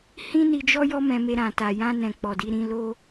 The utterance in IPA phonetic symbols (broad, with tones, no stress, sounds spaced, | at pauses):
h ĩ˦ n i˧ d͡ʒ ɔ˦ j ɔ˦ m ɛ̃˧ m e˧ ɾ ã˨ t a˨ j ã˧ n ɛ̃˨ k͡p ɔ˨ d i˧ ɾ ĩ˧ l o˦